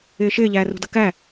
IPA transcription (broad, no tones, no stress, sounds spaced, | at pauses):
ɪː ʃ ɪː ʎ æː r ṳ d ʌ k æ